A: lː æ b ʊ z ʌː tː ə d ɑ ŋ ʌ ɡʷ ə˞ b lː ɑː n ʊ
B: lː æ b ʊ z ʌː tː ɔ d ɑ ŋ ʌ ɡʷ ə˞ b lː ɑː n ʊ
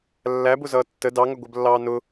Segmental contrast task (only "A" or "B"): A